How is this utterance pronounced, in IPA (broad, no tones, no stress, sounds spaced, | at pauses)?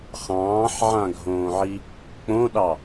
χ ɑ̃ː ħ ʕ ã ɡʱ õː ʕ i | k͡p õ ɗ ɑ